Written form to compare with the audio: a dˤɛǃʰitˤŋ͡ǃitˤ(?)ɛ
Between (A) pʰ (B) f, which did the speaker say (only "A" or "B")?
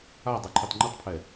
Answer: A